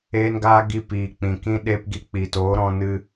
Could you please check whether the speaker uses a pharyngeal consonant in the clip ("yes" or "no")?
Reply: no